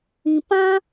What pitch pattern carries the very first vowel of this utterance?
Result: low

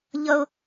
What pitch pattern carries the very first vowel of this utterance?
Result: high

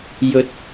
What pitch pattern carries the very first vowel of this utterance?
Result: rising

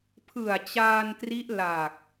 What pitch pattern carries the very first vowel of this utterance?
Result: low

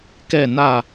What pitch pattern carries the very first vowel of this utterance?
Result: falling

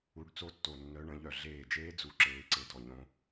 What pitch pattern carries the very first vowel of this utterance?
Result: rising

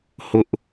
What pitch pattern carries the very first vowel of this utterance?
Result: high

